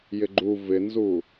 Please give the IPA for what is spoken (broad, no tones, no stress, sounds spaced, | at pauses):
j ɪ ɡ͡ǃ u v ɪ n z u